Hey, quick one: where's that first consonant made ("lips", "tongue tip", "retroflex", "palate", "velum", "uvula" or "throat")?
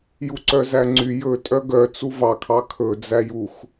palate